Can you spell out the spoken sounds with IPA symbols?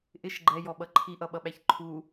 ʔ ɪ ʃ ɡ͡ǃ ɛ j ɔ ɓ ʌ ǃʰ i ʔ ʌ ɓ ʌ ɓ æ ç ǃʰ u

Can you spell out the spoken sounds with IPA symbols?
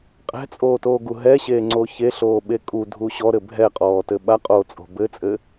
qʼ ɛ̤ t͡sʼ oː t oː ɡ u ɦ ɛ ɕ eː ŋ͡ǀ o ç e ɬ oː ɓ e kʼ u dʱ u ɕ ɔ ɾ ɘ bʱ ɛ qʼ ɔː t ɘ ɓ a qʼ oː t͡sʼ o̤ b ɘ t͡sʼ ɘ

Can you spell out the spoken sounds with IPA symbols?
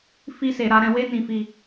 f i˧ s e˨ ɾ a˧ ɾ ɛ̃˧ w e˧ n ĩ˨ f i˧

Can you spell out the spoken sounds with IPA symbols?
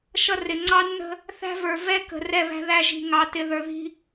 ʃ ʌ˦ r ɪ˨ ŋ͡ǀ ɑ˦ nː ə̤˦ | θ æ̤˦ v ə˞˨ v ɛ˦ k ə̤˨ r ɛ˦ β æ̤˦ ð æ˦ ʒ i̤˨ ŋ ɑ˨ t ɪ˨ ð ə˞˨ ð i̤˦

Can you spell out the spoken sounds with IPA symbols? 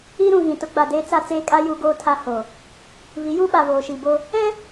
i˦ ɾ ũ˨ ɣ ĩ˨ t ʊ˦ ɡ͡b a˨ d eː˦ t͡s a˦ t͡s eː˦ kʼ a˦ j u˦ ɡ oː˦ tʰ a˦ h o˨ | β i˨˦ j u˦ ɓ a˨ β oː˨ ʃ i˨ b o˦ | ɛ˦

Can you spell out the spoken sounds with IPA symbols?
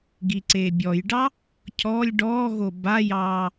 ɡ i ǀ eː bʲ ɔ j ɖ ɑ | cʰ ɔː lʲ ɖ ɔː ɣ o b a j ɑː

